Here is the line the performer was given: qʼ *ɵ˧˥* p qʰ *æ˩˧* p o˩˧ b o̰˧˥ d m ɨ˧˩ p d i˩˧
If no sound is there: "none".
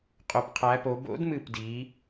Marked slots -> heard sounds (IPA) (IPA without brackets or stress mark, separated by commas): ɵ˩˧, æ˩˧